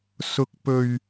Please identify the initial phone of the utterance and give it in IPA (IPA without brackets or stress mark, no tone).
s